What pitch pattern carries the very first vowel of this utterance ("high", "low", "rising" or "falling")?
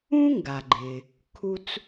high